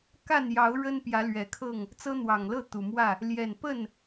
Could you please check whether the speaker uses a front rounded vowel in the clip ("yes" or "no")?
no